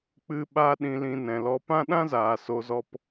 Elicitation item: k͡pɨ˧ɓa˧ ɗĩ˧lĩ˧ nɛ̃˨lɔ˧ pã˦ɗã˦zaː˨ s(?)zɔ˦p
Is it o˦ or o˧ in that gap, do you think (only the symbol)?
o˧